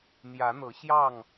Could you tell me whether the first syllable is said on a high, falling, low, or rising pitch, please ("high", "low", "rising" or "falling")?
rising